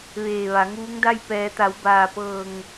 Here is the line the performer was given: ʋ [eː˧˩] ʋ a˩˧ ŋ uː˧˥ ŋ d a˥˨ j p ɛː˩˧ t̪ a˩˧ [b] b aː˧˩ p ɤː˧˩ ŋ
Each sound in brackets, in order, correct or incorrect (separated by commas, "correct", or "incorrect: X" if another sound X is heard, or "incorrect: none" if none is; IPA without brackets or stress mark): correct, incorrect: w